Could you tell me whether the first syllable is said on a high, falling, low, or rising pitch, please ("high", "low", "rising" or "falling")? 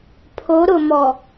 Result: rising